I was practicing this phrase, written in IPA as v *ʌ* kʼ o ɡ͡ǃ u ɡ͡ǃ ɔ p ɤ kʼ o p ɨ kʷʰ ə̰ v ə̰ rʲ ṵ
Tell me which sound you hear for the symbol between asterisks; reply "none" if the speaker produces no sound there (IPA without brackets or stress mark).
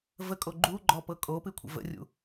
ə